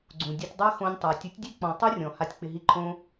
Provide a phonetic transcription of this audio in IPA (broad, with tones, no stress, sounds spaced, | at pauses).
ɡ͡ǀ ũ˨ dʲ a˧ tʲ dˤ a˦ x õ˧ nʲ tˤ a˨ tʲ u˨˦ tʲ dʲ e˦ k͡p ɔ̃˨ tˤ u˦ rʲ ɔ̃˨ h a˧ tʲ k͡p ɪ˧ ɦ i˦ ǃʰ õ˦